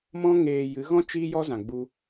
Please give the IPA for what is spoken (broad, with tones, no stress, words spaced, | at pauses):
mɔ̃˦ŋeː˧ jɨ˨˦ɣɔ̃˦ t͡ʃiː˦jɔ˦zã˨ ɡ͡bu˦